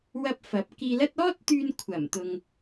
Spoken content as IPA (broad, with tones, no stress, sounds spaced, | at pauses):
w ɐ˧ p̚ f ɐ˨˥ p̚ k iː˧ l ɐ˥ t̚ ɔː˥ t̚ t̪ yː˧ n kʷʰ ɐ˨˩ m t̪ ʊ˨ ŋ